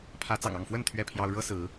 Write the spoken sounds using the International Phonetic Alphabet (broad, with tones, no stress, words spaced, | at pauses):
pʰä˨˦t͡sɑ̰˨˩ŋɑ˥˨ŋfwə˥˨n t̪ʰɥɛ˥˨pʰjɑ˦ʊ̯ ɻɤ˦sɹ̩˨˦